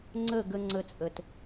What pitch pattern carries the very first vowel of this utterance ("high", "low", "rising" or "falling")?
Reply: falling